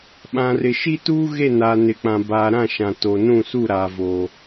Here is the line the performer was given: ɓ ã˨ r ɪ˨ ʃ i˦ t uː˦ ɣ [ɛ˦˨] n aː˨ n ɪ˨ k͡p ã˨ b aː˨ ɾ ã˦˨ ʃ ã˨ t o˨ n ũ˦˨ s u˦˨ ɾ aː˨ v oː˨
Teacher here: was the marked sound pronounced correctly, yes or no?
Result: no